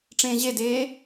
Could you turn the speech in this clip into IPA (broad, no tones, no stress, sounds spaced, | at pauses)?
ʈ͡ʂ ẽː ʑ e d eː